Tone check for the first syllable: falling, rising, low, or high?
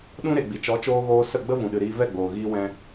high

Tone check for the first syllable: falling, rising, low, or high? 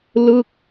falling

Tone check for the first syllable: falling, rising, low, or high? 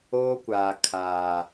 high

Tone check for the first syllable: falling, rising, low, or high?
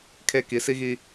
high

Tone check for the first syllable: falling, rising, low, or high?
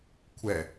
low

